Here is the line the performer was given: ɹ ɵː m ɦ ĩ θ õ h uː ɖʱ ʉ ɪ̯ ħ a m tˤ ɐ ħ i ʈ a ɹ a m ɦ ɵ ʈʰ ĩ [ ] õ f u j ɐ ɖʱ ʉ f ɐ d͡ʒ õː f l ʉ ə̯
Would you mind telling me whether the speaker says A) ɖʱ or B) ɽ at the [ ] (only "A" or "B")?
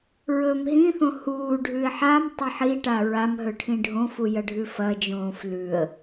A